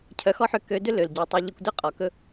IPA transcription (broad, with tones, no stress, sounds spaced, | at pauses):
cʰ œ˨˦ x ɔ˦ ħ ʏ˧ k ø˨˦ d ʏ˦ l ø˨ l ɟ ø˨ tˤ ʏ˧ ʎ ɵ˧ kʷ d ʏ˦ qʼ ɔ˨ k ɵ˦